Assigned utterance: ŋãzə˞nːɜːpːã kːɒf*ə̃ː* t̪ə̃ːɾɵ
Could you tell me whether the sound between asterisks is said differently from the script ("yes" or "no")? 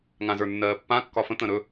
yes